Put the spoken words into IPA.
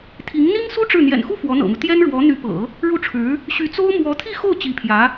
t̪ʰ i˧˥ ŋ n̪ i˥ ŋ s u˥ ʈ͡ʂ ɻ̩˥˩ n̪ j ɛ̰˨˩ n x u˥˩ f w ɔ˧˥ n̪ ɤ̰˨˩ m u˦ t̪ j ɛ˥ n ɻ w ɔ˧˥ n̪ y˧˥ p ɤ̰˨˩˦ | ɻ u˥˩ ʈ͡ʂʰ ɻ̩˧˥ | ɕ y˧˥ t͡s o˥ ʊ̯ m w ɔ˧˥ t̪ʰ i˥˧ x o˥˩ ʊ̯ t͡ɕ i˧˥ pʰ j ä˧˥

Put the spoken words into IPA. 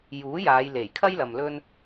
j uː˨˥ j aː˨˧ j l e˨˩ j kʰ ɐ˥ j l ɐ˨ m l ɵ˥ n

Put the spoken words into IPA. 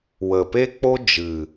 w ə˨ p e˦ k͡p o˦ d͡ʒ ɨ˨

